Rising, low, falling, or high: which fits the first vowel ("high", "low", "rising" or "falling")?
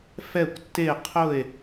falling